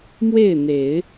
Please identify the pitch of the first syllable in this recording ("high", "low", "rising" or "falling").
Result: falling